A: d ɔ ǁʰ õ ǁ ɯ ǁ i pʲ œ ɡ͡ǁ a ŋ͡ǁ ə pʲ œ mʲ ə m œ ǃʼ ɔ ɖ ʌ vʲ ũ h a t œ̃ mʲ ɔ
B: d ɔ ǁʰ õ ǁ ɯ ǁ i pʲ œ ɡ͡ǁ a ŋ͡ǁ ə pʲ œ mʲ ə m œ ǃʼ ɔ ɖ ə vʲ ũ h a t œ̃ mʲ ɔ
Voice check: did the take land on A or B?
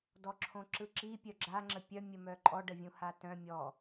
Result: B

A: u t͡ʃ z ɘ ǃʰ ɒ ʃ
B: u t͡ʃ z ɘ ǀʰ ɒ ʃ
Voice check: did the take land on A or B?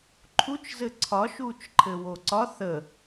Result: B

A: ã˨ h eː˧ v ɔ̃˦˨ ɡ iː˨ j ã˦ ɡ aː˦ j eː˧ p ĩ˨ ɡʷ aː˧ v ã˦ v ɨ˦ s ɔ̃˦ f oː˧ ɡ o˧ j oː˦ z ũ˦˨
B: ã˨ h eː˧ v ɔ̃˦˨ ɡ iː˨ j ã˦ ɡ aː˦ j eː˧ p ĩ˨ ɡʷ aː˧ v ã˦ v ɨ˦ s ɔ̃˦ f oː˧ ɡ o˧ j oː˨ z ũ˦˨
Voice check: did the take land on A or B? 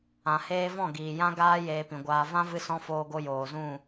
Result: B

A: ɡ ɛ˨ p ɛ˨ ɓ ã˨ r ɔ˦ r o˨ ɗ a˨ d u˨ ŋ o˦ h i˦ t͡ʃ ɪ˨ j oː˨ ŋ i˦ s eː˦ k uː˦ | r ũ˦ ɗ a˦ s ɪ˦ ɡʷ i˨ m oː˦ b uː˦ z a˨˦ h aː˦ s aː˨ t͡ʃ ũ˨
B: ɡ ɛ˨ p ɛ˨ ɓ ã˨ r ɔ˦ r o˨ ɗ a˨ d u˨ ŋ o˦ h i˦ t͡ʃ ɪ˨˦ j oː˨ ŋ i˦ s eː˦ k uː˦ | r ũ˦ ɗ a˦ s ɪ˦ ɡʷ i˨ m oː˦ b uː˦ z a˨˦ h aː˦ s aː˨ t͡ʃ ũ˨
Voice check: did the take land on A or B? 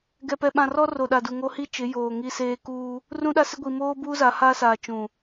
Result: B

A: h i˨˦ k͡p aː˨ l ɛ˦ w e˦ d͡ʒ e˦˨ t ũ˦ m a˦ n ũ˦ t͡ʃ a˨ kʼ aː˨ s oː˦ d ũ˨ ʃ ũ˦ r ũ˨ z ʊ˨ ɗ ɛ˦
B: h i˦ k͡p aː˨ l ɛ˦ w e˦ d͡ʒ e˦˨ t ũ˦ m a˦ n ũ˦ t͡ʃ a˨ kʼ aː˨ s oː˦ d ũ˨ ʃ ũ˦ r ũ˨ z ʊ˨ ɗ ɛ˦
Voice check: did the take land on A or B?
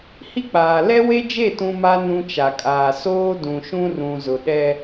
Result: B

